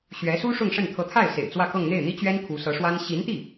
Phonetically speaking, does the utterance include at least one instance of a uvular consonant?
no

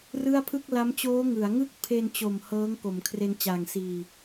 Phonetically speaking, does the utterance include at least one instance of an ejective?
no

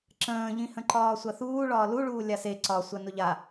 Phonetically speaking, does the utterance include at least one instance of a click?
yes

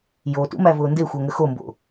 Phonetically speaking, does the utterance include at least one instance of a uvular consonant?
no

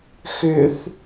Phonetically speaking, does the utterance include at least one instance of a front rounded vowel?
yes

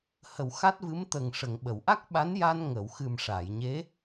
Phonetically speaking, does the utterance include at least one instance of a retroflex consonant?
yes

